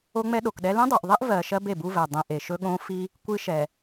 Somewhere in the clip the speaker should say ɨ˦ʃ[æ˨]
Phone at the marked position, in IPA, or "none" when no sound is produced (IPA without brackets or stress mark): ɛ˨